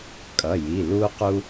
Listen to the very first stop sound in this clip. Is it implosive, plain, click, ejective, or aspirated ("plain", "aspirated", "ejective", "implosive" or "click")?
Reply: ejective